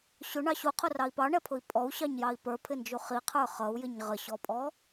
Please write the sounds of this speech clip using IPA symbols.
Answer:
ɕ ʊ ɳ ɑ ɕ u qʰ ʊ r ɑ i̯ p ɑ ɳ ɛ pʰ ʊ i̯ pʼ ɔ u̯ ɕ ɑ ɲ j ɑ i̯ p ə˞ pʰ ɪ n d͡ʒ u χ i qʰ ə˞ χ ʌ u̯ j ɪ ɲ ʁ ə ɕ ɔ pʼ ɔ

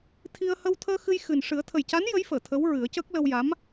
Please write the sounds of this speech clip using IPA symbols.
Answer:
t̪ʰ i˧ ə̯ h ə˧ w t̪ʰ əː˧ x ɨ˧ j x ɨ˨˩ n ʂ ɨ˨˩˦ ə̯ t̪ʰ ə˨˩ j c a˧˥ n j ə˧˥ j f əː˨˩˨ t̪ʰ ə˧˥ w ɹ ɨ˨˩˦ ə̯ c əː˦˥ k̚ l ə˧ w j a˧˥ m

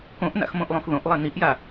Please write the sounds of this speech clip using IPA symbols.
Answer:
k õ ʔ n a̰ x m õ ʔ lˠ õ x ð õ ʔ lˠ ɛ n i ʔ j a

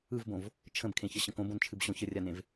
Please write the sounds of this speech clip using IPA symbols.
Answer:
ɯ v b õ v | t͡ʃʰ ə̃ b kʰ ẽ ç ə ɕ ə̃ k õ b õ n t͡ʃʰ ɨ b ɕ õ ç ə rʲ a n ẽ v

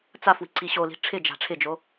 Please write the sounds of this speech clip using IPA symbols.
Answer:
t͡s a f w i̤ ǀ i ɕ o l i̤ ʈ͡ʂʰ ɪ d͡ʒ a̤ ʈ͡ʂʰ ɪ d͡ʒ o

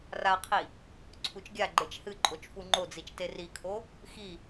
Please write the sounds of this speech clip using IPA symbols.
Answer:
r a qʰ i | ǀʰ u t͡ʃ ɡʲ a ɡ͡ǃ e t͡ʃ h ɨ ǃʼ o t͡ʃ f u ŋ͡ǃ o d͡z i t͡ʃ t e r i kʰ o | x i

